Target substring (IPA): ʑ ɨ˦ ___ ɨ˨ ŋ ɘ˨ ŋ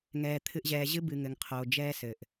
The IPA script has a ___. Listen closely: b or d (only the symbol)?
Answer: b